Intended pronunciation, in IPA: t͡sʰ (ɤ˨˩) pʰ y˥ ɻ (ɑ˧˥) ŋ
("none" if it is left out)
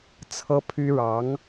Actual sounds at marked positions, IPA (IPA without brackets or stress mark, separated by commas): ɤ˥, ɑ˧˥